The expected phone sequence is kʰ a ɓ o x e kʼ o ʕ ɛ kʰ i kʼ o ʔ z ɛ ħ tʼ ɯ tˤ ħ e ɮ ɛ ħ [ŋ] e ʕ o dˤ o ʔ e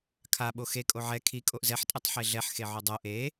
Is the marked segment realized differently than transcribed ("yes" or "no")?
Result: yes